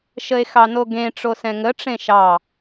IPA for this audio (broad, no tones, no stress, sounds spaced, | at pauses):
ʃ ə e̯ x ɑ n o ɡ ẽ ʈ͡ʂ o s ɛ̃ ŋ ə ʈ͡ʂ ẽ ʃ ɑ